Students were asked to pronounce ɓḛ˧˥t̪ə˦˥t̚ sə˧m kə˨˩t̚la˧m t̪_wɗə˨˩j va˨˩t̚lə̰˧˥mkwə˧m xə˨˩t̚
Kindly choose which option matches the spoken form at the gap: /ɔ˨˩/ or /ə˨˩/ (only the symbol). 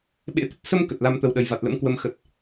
ə˨˩